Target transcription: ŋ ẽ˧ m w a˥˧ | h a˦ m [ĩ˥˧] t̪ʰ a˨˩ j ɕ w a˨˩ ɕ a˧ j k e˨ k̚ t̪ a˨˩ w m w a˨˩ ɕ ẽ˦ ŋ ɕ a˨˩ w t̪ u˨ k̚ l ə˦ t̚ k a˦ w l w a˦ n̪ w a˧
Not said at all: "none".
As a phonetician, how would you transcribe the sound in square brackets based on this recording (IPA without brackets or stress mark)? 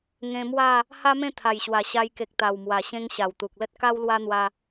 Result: ẽ˥˧